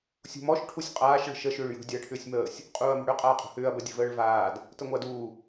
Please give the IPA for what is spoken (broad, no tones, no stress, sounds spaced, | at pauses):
sʲ ṳ m ɔ ʃ ʈʰ u sʲ qʼ aː ʃ ɭ ə̤ ʃ ə ʃ ʏː ɭ j ṳ dʲ a ɐ̯ ʈʰ ʏː sʲ m əː sʲ | qʼ uː ɐ̯ m ə̤ ɽ ʏ qʼ aː qʼ ṳ h ʏː ɐ̯ b ə dʲ ə̤ v əː ɭ v aː d | t ə ŋʷ a d uː